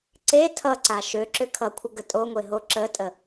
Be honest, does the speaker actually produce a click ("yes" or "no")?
yes